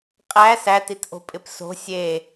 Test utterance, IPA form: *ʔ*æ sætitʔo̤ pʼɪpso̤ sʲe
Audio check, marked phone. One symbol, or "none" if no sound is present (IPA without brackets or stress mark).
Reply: qʼ